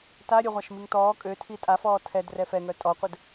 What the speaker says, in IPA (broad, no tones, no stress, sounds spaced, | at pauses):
t a ɾʲ ə ʁʷ a ʃ m i ŋ t ɔː kʼ ø tʰ i tʼ a f ɔː tʰ ɛ d r ɛ f ɛ ŋ œ tʼ ɔ qʷ œ d